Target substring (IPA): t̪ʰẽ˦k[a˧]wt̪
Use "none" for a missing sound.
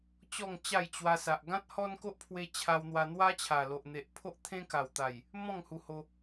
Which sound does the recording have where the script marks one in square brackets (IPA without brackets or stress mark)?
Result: a˨˩